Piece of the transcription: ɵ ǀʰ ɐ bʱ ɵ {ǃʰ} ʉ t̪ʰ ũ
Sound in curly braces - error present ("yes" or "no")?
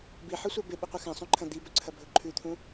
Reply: no